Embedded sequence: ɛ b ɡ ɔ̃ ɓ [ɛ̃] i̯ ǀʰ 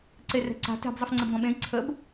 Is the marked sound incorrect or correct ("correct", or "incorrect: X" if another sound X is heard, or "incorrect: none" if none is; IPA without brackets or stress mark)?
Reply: incorrect: ẽ